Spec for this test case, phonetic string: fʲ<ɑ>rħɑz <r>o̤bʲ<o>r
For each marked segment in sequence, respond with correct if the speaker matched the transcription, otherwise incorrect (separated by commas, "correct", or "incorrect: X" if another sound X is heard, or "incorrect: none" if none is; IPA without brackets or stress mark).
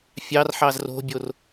correct, correct, correct